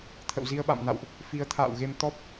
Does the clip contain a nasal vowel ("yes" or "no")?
no